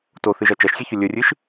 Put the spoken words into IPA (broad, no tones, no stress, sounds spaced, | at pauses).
t o θ ɨ ʒ ɐ t͡ʃ ɐ ʃ xʲ e ç ɵ lʲ ɵ rʲ ɨ ʃ